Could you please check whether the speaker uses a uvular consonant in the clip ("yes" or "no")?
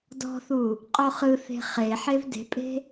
yes